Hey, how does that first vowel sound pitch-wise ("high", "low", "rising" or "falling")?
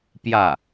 falling